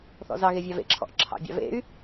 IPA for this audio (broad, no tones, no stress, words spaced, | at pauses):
θɔ̰zɑɣe vʲɑvḛǁʰɔ̰ʔ ǁʰɑ̰bʲɑ̰vḛy̯